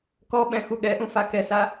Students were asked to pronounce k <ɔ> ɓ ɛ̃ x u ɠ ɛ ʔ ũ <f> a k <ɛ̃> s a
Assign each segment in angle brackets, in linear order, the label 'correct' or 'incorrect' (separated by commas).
correct, correct, incorrect